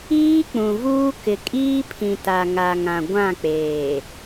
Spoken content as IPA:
iː˦ k͡pũ˨vuː˦ kɪ˨kʼiː˦pʰĩ˨ ta˨ŋa˨ŋã˨ ɡʷã˦˨k͡peː˨

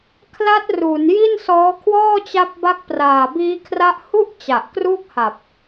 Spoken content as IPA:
kʰla˦˥t̚ ru˩˦n ji˥˩nsɔː˦˥kʰwɔː˥˩t͡ɕa˦˥p̚ ba˦˥k̚praː˨˩biː˦˥kʰra˦˥ʔ hu˥˩ʔ t͡ɕa˨˩ʔ kruː˥˩k̚ha˨˩p̚

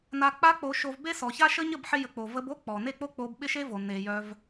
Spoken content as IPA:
na˧k͡pa˦k͡po˧ ʃo˧vbe˦ sɔ˨ça˦ʃə˦ ɲə˦˨bħɪ˧jə˨k͡po˨ və˧b o˦k͡pɔ˨ ne˦˨k͡po˦k͡po˧b ɓɪ˦ʃe˦vo˨ ne˨jœ˧v

